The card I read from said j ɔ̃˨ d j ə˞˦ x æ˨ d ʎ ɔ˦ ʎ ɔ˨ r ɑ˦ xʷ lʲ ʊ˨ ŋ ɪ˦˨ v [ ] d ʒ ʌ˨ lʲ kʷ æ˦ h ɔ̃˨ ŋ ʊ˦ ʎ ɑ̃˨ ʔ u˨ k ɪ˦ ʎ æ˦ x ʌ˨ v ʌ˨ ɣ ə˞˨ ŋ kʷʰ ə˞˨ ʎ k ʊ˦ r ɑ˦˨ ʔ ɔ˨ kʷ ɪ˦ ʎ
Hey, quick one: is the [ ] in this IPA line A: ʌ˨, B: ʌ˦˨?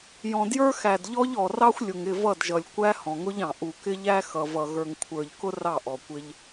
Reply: B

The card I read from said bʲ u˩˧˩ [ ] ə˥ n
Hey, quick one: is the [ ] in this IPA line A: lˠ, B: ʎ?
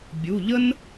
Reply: B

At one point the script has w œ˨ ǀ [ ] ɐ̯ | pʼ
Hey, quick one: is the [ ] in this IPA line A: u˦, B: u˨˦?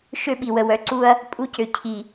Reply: A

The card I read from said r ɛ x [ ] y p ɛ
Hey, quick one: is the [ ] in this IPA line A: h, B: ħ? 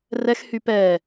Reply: A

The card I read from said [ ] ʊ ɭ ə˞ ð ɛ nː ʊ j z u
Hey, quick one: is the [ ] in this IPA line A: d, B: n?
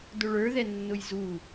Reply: A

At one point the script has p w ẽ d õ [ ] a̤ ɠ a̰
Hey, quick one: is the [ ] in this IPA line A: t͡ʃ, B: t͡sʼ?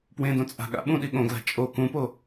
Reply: B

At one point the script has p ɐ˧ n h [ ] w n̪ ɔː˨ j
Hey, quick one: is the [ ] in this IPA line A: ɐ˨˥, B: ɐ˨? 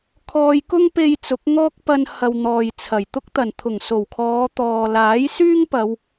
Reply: B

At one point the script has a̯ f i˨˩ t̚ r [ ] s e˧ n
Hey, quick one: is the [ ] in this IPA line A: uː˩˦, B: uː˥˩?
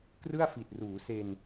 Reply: A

